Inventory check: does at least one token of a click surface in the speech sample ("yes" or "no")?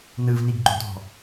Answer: yes